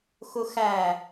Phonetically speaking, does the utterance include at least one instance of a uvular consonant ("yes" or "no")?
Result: no